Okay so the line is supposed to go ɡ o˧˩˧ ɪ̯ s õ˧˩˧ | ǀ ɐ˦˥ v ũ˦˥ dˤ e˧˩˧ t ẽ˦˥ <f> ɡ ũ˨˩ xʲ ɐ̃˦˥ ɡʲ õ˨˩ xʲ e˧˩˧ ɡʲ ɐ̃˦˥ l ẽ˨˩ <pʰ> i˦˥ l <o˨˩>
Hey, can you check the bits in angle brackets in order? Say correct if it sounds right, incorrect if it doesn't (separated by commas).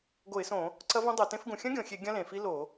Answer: correct, incorrect, incorrect